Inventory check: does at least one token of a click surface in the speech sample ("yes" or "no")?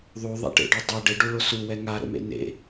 no